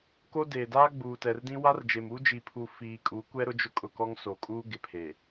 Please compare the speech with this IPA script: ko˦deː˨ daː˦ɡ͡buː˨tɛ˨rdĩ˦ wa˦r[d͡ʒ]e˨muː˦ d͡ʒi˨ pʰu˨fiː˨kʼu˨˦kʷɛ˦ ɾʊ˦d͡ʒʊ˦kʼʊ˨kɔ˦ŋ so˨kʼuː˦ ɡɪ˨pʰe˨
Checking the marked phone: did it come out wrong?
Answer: no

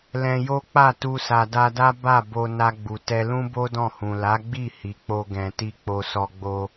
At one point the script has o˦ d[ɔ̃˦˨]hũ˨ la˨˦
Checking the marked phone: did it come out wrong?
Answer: no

